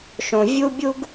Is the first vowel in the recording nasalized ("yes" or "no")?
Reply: yes